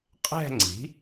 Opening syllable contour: falling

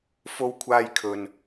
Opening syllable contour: high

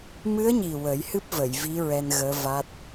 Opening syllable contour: rising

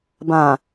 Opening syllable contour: low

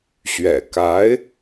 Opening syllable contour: low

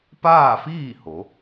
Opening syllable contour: falling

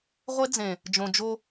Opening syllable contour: high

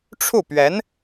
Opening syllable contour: falling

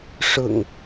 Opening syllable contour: low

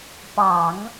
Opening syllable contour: low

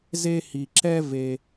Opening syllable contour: high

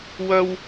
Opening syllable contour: high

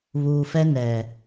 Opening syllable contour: low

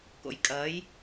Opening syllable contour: low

